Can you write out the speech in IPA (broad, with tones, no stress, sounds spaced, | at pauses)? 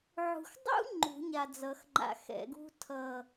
ʕ ṳ˨ x dˤ ṵ˥ ŋ͡ǃ ṳ˨˩˦ ɲ a˨ d͡z ʌ˨˩˦ x ŋ͡ǃ a̰˨ x ɛ̰˨˩˦ ɡ ṳ˥ tʰ ʌ˦˨